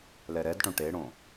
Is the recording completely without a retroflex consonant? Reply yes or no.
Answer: no